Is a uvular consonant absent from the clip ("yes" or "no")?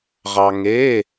no